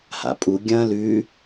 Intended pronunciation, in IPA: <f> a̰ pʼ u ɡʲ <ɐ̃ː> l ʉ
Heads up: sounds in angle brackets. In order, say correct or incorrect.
incorrect, correct

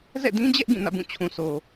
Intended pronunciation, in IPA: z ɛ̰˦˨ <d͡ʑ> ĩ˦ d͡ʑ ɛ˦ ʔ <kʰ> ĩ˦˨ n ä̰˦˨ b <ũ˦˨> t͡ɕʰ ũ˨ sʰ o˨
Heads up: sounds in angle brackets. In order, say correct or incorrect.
incorrect, incorrect, correct

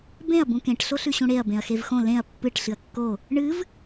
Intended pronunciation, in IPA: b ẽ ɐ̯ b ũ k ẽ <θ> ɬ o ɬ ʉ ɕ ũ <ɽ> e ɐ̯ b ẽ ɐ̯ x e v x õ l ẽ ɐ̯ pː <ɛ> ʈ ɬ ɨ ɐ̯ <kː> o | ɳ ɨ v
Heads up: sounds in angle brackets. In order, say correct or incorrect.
incorrect, correct, incorrect, correct

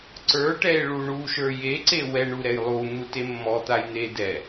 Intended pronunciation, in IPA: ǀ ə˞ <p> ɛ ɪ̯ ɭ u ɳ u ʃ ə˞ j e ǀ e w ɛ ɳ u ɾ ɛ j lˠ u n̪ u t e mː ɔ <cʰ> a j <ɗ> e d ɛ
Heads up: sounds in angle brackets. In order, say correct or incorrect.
incorrect, incorrect, incorrect

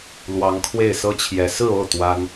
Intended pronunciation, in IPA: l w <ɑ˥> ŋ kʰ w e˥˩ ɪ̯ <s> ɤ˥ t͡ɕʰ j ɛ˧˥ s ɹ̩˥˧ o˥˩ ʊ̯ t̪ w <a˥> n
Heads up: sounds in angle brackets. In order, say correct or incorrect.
incorrect, correct, correct

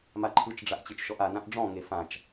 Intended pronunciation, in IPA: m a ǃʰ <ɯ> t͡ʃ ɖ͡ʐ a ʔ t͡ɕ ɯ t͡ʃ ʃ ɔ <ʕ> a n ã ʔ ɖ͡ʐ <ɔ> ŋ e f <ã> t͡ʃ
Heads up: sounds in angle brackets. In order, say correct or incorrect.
correct, incorrect, incorrect, correct

